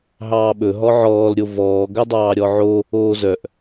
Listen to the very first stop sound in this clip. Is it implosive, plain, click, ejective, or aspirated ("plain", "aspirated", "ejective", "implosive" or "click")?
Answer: implosive